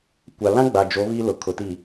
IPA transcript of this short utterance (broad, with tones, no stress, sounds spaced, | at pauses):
kʷ a˨ l ã˦ ɡ͡b a˨ d͡ʒ o˨˦ β i˦ l ʊ˨ kʰ ʊ˨ t i˨